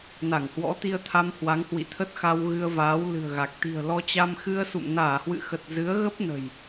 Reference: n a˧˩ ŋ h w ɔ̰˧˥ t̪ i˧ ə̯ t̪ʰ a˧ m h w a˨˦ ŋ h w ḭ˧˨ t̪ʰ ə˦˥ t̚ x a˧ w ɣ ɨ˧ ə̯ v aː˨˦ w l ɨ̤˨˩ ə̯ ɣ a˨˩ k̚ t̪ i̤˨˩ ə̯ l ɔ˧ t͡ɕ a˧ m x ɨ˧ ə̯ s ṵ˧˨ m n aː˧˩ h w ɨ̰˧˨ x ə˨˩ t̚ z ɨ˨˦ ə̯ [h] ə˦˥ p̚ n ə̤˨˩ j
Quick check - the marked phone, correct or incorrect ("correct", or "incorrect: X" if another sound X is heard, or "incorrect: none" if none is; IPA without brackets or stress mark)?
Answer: incorrect: ɣ